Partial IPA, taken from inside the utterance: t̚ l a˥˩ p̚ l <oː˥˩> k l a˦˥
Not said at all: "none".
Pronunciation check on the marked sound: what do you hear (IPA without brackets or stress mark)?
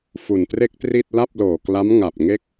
oː˨˩